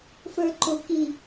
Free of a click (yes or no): no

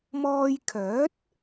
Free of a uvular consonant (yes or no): yes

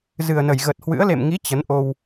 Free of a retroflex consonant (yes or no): yes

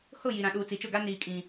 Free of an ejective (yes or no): no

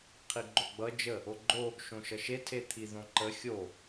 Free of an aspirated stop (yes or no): no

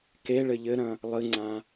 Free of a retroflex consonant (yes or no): no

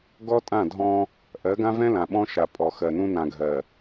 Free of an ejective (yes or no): no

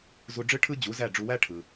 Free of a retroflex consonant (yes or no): no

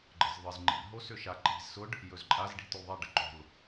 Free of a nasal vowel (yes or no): yes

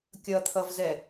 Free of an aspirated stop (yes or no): no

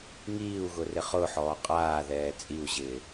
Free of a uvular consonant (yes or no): no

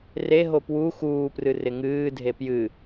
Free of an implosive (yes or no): yes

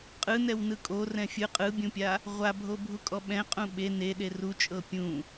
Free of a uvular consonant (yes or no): no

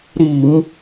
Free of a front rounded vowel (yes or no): yes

